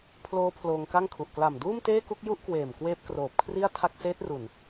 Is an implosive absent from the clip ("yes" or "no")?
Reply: yes